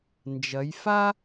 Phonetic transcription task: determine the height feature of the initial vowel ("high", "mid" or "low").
low